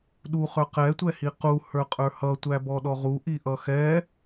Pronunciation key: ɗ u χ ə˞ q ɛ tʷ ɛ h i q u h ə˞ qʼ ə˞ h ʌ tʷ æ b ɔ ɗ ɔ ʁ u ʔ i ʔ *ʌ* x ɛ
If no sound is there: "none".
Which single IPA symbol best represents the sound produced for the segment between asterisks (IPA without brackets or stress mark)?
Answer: ʌ